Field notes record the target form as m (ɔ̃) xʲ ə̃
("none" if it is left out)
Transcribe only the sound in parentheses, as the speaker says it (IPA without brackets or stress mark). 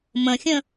ə̃